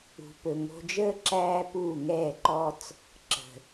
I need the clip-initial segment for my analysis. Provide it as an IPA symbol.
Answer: ṳ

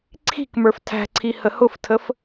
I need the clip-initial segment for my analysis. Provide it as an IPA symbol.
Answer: ǀʰ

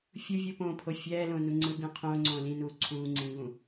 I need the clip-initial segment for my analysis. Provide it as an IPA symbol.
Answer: fʲ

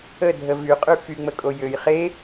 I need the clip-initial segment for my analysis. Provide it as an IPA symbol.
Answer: ə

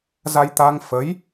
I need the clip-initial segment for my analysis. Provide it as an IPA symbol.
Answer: z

